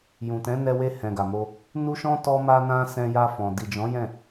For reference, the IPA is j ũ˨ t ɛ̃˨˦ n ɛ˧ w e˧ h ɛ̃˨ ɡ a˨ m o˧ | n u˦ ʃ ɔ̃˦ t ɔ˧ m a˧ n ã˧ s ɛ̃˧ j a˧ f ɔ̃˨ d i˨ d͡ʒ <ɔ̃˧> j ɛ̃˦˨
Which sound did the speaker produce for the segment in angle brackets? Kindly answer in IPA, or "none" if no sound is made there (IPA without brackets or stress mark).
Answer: ɔ̃˨˦